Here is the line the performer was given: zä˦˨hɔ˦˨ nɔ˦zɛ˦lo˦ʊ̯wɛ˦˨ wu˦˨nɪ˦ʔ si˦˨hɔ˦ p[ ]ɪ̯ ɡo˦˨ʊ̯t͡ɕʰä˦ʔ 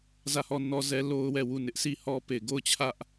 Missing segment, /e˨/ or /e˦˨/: e˦˨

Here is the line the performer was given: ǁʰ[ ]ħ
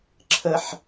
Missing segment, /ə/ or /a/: ə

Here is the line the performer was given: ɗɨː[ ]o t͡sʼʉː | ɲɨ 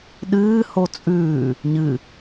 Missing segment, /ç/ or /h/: h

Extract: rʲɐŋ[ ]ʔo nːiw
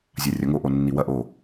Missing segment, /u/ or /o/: o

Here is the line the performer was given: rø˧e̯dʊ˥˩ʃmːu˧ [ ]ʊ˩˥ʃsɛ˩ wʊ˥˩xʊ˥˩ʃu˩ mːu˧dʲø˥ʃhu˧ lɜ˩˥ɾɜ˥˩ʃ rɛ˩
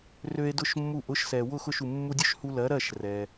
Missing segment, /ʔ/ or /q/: ʔ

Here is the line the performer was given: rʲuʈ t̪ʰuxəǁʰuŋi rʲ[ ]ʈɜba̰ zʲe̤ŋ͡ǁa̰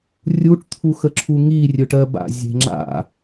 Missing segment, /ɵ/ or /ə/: ɵ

